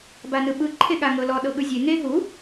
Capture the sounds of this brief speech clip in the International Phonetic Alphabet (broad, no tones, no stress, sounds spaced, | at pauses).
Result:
b a n ɯ ɓ ɯ ǃʰ e ɠ a ŋ ɤ l ɔ ɗ ɤ ɠ ɯ zʲ e ŋ e ɦ u